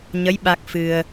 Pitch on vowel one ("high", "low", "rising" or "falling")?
rising